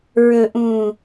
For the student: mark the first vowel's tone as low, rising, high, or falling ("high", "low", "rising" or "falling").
low